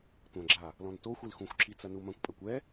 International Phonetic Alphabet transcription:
tʷ ɐ̃ ɡ͡ǁ a | l ɔ̃ n t o xʷ i l x ũ xʷ ǁ i t͡s ɐ n u m ɐ̃ kʷ pʼ ɐ kʷ ɛ

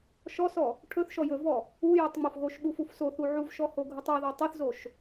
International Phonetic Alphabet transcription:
ʃ ɔ s ɔ | ʈʰ ɵ θ ʃ ɔ j ɵ v ɔ | u j ɵ tˤ ŋ͡m o f ɣ o ʃ ɓ u f u f s o θ u ʕ u v ʃ ɔ h o ɡʱ u tˤ ɔ ð ɔ tˤ ɵ θ z o ʃ

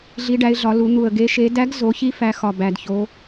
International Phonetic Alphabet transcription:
ɮ i˩˧ ɖ æ˩˧ ɪ̯ ɮ ɒ˩˧ l u˩˧ n̪ u˨˩ ə̯ ɡ e˨˥ ʃ e˨˥ d æ˨˥ ɡ z o˩˧ ç i˨˥ f æ˨˥ x ɒ˨˩ b æ˨˩ d ç o˨˥

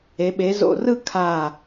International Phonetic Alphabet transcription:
e˩˧ ɓ e˩˧ z o̰˧˩ r ɯ˥˧ kʰ a˧˩

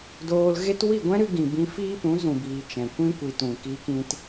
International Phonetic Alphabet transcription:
d oː˧ l ɣ e˦ t w i˦˨ ɡʷ ɛ̃˦ ɾ ɨ˧ ɡ ĩ˨ b ĩ˧ f iː˦ p ũ˨˦ z ũ˨ b iː˨ t͡ʃ ɛ̃˨ kʷ ĩ˦ kʷ i˧ t ũ˨ k iː˧ k ĩ˧ t

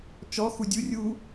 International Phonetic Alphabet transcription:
t͡ʃ ɔ x u dʲ u rʲ u

